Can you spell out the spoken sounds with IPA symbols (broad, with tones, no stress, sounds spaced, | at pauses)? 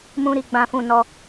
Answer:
m ũ˧ ɾ i˧ ɡ͡b ã˧ f ũ˧ n ɔ˧